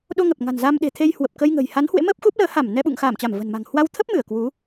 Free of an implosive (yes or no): no